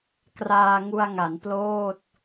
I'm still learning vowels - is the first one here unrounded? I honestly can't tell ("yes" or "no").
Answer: yes